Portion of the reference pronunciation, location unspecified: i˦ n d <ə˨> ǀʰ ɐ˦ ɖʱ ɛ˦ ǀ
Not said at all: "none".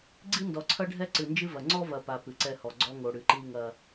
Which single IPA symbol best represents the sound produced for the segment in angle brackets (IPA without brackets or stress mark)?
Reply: ɔ˨